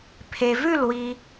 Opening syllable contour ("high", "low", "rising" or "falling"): low